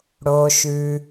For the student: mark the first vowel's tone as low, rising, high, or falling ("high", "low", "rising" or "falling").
low